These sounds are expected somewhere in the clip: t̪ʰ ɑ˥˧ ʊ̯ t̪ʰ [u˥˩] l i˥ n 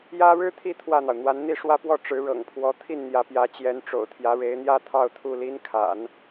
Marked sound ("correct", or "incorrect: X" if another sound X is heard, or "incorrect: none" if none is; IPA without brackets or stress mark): correct